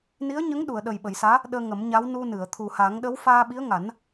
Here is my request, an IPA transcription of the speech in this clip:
n i˧˥ ə̯ ɲ ə˧˥ ŋ ɗ u˨˩˨ ə̯ ɗ ə˨˩ j ɓ ə˨˩˨ j s aː˧˥ | ɗ əː˧ ŋ ə˨˩˦ m ɲ a˧˥ w n u˧ n ɨ˨˩˨ ə̯ t̪ʰ u˨˩ h a˨˩˦ ŋ ɗ ə˧˥ w f aː˧ ɓ i˧˥ ə̯ ŋ a˨˩˦ n

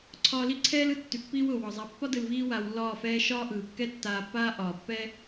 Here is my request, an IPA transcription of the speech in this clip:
ǀʰ ɒː˧ l i˦ ǀʰ ɛː˦ l ɯ˧ tː y˨ pː iː˧ w ʊː˨ w ɒ˨ zˤ a˨˦ pː ɒ˦ d ɯ˧ l v iː˦ w aː˧ w lː ɒː˦˨ f ɛː˦ ʃ ɒː˦ ʔ ɯː˨ kː ɛ˦ tː aː˧ pː aː˦ ʔ ɒː˨ pː ɛ˦

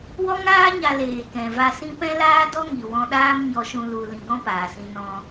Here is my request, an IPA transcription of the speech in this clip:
w ɔ˦ ŋ aː˦ ɲ a˧ l eː˨ k ɛ̃˨ v a˧ s ĩ˦ p ɛ̃˦ l aː˦ d ɔ˦ ŋ i˨ w ɔ̃˧ ɗ aː˦ m ɲ ɔ˧ ʃ ũ˧ l u˧ l ĩ˧ ɡ ɔ̃˦ p aː˨ s ĩ˧ n ɔ̃˧

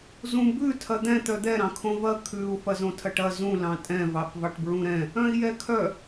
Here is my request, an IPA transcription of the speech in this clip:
z ũ b ʉ tʰ ɐ d̪ ɛ̃ t̪ œ d̪ ɛ ɾ ɑ̃ kʰ õ v ɐ kʰ ʉ u̯ f ɐ z õ tʰ ɐ ʈ ɐ z ũ l ɑ̃ tʼ ɛ̃ v ɑ f v ɑ ʈ b ɹ ũ ɾ ɛ̃ | œ̃ i̯ j ɛ kʰ œ

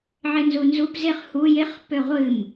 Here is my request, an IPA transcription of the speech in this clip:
ʕ ɪ n z u n z u p z ɪ χ h u j ɪ χ p ø ʁʷ ɨ m

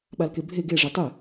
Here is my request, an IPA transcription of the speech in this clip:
ɓ a l k e bʱ e ɡ e ʐ e tˤ ɨ

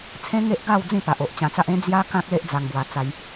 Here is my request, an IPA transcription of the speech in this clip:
t͡sʰ ẽ˦ ŋ e˦ ʔ ɡ a˥˧ w d͡z ĩ˥˧ p a˨ ʔ o˨ ʔ t͡ɕ ã˧ t͡s a˦ ʔ ẽ˦ d͡z j a˦ k ã˦ k̚ l e˦ ʔ d͡z a˧ ŋ b w a˧ t͡s a˧ j

